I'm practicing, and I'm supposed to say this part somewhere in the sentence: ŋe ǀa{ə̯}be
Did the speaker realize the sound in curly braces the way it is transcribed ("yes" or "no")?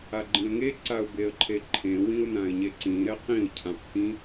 no